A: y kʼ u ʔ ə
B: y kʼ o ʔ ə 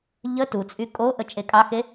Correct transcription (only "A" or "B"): B